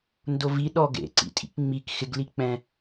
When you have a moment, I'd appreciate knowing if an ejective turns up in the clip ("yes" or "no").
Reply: yes